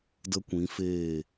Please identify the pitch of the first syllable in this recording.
high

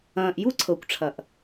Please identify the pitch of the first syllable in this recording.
low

